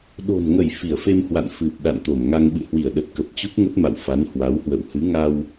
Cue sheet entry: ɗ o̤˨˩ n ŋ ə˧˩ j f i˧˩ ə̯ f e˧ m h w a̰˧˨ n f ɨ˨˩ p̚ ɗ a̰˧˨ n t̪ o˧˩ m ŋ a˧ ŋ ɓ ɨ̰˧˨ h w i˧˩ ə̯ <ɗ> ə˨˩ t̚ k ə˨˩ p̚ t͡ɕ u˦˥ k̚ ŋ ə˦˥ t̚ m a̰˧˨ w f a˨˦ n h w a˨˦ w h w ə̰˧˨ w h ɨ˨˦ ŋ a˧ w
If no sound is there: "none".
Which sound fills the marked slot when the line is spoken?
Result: ɗ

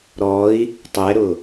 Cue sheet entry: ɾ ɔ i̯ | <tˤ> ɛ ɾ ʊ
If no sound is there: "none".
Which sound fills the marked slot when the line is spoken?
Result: tˤ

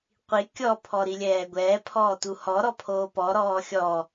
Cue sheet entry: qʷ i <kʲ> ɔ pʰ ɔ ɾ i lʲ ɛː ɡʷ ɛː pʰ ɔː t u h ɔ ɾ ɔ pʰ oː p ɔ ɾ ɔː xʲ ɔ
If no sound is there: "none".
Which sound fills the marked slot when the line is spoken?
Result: kʲ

